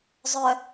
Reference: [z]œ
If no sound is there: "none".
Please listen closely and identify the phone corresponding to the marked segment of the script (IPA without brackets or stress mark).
zˤ